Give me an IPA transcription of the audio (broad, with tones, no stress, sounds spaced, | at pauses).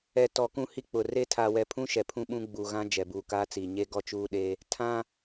ɛ˨ t ɔ˨ k ũ˦˨ h i˦ k͡p ʊ˨ r e˦ tʰ aː˨ w ɛ˨ pʰ ũ˦ ʃ ɛ˨ pʰ ũ˦ ɓ ũ˦ ɡ͡b u˨ ɣ ã˦ d͡ʒ ɛ˨ b uː˨ k aː˦ t͡s iː˨ ɲ e˦ ɡ ɔ˦ t͡ʃ uː˦ ɗ e˦ | tʰ ã˦